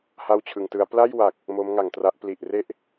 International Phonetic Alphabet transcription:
h a˥˩ w t͡ɕʰ ɯ˧ ŋ t ɯ˦˥ a̯ p l a˥˩ j w a˨˩ k̚ | m o˦˥ m ŋ a˨˩ ŋ t r a˦˥ ʔ p l i˨˩ ʔ r e˦˥ ʔ

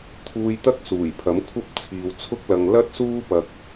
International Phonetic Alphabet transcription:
t̪ʰ uː˧ j t̪ ɐ˥ k̚ s uː˨˩ j pʰ ɐ˨˥ m kʷʰ ɐ˥ p̚ t͡sʰ iː˨ w t͡sʰ ʊ˥ k̚ l ɐ˧ ŋ l ɐ˥ t̚ s uː˥ p ɐ˧ k̚

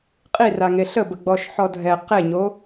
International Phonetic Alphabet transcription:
qʼ i r a ŋ e ɬ ə b ə ɡ͡b ɔ ʃ ħ ɔ dʱ ɛ q e ɲ o

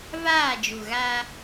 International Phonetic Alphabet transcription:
v aː˦˨ d͡ʒ u˨ ɣ aː˦

